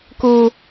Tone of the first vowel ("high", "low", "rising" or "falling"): high